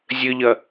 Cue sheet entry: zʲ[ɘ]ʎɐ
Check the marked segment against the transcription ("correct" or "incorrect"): correct